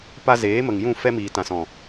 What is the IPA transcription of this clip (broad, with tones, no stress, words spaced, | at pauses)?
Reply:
pa˧zeː˨˦mə˨ŋjũ˦˨ fɛ˧miː˨ tã˨sɔ̃˨